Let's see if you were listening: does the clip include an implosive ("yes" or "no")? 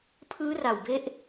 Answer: no